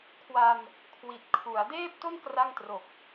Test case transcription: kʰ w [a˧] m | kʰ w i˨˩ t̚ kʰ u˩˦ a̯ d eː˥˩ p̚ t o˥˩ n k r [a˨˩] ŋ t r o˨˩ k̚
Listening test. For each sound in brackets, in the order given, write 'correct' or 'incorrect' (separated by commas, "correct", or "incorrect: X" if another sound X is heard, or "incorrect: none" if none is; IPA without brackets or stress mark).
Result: correct, incorrect: a˥˩